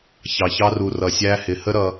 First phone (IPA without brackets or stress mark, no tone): ç